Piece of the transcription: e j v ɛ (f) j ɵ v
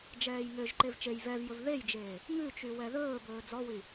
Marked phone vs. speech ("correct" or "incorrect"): incorrect